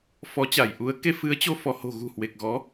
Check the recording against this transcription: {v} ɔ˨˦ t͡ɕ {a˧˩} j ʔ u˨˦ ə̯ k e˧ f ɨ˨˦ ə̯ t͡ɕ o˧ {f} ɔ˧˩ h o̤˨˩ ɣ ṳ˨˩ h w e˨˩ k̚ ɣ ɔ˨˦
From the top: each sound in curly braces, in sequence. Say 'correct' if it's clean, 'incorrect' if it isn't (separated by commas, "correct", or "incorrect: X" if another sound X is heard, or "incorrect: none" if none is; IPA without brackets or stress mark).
incorrect: f, correct, correct